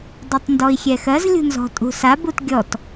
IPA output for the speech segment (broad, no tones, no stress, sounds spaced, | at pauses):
dˤ u tˤ n d ɔ i̯ xʲ ɛ x ɜ z lʲ ṳ n z ɔ̤ tʼ ṳ s a b u t ɡʲ ɔ t